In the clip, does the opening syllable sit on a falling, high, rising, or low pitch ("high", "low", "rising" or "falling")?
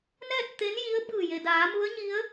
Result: falling